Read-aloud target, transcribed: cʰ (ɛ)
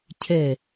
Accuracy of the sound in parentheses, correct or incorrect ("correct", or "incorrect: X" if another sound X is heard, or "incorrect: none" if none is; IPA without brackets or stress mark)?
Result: correct